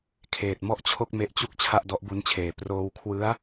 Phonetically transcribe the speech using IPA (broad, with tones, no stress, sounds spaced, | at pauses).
kʰ eː˨˩ t̚ m ɔ˥˩ ʔ t͡ɕʰ o˥˩ k̚ m e˦˥ ʔ t͡ɕ u˥˩ k̚ t͡ɕʰ a˥˩ ʔ d ɔ˦˥ ʔ b u˦˥ n t͡ɕʰ eː˨˩ p r oː˧ w kʰ w ɯ˦˥ a̯